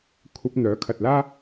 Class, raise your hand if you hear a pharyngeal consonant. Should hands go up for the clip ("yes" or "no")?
no